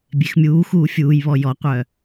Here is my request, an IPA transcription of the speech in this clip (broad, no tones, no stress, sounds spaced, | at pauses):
bʲ e x mʲ uː x uː fʲ uː j β ɔ j ɔ qʷ œː